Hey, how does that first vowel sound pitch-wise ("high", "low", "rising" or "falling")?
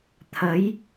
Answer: rising